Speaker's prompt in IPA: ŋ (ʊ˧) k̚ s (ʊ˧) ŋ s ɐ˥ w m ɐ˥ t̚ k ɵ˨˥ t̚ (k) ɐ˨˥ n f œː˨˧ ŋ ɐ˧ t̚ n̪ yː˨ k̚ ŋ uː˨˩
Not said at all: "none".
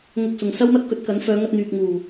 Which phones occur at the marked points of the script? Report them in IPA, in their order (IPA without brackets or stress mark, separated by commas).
ʊ˧, ʊ˨, k